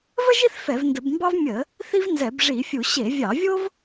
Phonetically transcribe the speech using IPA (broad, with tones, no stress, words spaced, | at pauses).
və˥ʒi˥θ fɛ˧˩˧vndə˧˩˧bmbɑ˥v mʲə˧˩˧ | θi˥vnzɛ˧˩˧bʐi˧˩˧fʲu˧˩˧ ɕe˧˩˧vʲɑ˧˩˧vʲo˥v